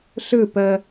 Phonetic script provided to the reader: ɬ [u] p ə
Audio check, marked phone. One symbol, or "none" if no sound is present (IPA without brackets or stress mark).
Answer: ɯ